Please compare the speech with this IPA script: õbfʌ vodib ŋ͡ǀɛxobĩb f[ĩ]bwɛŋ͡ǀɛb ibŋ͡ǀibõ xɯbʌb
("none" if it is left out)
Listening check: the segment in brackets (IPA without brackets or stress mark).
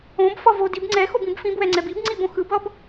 ĩ